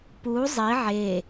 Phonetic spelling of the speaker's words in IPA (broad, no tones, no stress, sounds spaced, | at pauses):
p u zˤ i ʕ e